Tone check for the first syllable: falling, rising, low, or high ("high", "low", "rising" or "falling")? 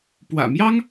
low